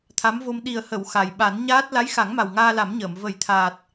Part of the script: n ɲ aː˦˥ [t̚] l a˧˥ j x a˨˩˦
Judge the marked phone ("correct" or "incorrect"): correct